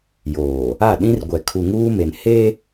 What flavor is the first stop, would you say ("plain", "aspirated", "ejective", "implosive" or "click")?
implosive